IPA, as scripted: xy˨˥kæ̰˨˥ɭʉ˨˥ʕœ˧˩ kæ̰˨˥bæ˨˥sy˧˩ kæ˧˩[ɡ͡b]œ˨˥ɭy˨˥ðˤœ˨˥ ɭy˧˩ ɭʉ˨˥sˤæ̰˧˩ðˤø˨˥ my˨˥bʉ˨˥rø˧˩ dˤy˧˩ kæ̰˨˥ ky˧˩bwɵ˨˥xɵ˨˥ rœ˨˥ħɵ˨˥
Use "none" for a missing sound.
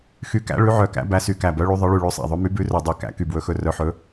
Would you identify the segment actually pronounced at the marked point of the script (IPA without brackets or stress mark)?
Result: b